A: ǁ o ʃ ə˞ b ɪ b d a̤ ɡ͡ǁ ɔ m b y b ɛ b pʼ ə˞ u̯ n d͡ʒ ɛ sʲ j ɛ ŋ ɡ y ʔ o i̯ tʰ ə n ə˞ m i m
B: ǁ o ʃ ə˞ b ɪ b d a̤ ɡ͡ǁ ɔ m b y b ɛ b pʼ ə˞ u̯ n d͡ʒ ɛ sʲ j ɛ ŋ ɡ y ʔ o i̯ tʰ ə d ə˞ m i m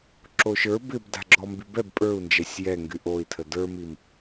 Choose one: B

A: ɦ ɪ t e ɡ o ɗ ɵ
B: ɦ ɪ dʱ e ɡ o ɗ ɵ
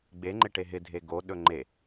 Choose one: B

